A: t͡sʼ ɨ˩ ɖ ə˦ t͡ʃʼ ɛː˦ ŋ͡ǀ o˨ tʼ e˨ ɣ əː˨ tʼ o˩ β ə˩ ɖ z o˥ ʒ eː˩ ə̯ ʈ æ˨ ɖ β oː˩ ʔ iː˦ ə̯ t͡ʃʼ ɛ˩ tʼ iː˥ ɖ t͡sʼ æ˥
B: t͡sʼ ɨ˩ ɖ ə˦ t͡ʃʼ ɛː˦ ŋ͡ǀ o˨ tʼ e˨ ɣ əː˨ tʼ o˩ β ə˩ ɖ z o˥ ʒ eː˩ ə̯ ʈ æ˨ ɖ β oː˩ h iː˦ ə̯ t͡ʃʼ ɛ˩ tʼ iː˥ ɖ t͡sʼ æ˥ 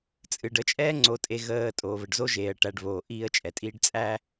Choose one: A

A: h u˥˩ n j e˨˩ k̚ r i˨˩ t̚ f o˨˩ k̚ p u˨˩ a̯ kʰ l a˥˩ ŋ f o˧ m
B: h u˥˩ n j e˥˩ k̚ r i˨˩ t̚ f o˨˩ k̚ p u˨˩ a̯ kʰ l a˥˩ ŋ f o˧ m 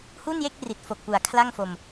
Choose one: B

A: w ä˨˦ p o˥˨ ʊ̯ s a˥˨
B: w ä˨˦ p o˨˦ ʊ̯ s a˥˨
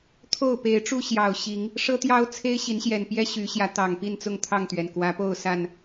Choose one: A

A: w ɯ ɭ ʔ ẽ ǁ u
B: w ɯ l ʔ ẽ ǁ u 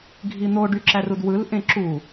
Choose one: B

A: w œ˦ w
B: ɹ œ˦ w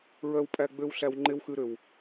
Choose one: B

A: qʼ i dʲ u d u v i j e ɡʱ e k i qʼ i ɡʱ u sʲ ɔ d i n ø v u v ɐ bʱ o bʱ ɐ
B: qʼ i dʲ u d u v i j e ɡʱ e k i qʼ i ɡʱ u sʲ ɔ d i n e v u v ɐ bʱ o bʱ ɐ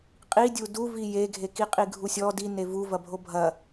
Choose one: B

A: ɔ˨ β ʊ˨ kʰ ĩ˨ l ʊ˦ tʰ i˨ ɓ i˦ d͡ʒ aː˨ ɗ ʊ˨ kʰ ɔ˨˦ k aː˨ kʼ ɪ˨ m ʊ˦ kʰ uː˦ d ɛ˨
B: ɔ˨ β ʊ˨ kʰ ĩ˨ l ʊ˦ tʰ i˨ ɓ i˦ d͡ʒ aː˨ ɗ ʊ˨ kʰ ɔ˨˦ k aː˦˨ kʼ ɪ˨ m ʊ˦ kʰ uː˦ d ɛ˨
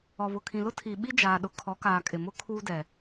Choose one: A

